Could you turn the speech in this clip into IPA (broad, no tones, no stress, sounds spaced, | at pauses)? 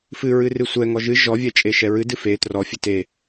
f ɨ ɹ ɨ r ɨ sʷ ɛ ŋ ɔ ʒ ɨ ʒ ɔ vʲ ɛ t͡ʃʼ e ʃ ɛ ɹ ɨ d ɨ f e t r ɔ fʲ ɨ t e